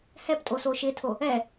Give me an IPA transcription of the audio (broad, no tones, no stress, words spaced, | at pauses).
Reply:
hɛptʼo soʃɪtʰo | ɛ